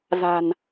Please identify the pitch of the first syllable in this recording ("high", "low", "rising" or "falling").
low